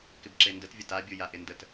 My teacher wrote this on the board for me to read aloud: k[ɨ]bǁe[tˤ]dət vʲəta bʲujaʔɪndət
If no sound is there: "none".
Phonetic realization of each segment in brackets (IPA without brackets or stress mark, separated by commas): ɪ, n